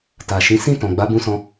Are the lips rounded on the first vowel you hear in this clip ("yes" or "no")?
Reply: no